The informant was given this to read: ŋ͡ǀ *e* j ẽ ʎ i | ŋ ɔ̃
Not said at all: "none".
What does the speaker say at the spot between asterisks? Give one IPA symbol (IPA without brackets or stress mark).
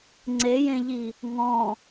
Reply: e